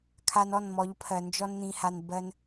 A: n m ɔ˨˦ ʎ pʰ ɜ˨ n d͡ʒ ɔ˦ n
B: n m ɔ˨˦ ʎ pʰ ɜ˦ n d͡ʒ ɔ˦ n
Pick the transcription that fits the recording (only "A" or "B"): A